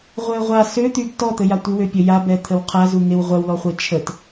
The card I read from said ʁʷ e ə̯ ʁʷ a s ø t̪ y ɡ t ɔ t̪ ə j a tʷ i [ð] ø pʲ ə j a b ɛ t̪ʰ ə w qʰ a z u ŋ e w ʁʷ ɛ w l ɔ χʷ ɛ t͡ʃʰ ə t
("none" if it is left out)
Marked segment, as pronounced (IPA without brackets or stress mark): w